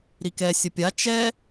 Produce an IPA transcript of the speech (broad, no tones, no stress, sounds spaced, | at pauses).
ɾ i k ɛ sʲ ə pʲ a t͡ʃ ɛ